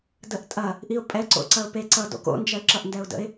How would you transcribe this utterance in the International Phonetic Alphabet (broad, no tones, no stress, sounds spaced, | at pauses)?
d ə ʔ tʼ ɐ | ʔ i ʊ̯ pʼ ɛ ǀ o̰ ǀ ɐ ʊ̯ p e ǀ ʌ d o̰ k o̰ n d͡ʒ ɐ ɪ̯ ǁ ʌ ʔ n d ɛ ʊ̯ d ə̰ ɪ̯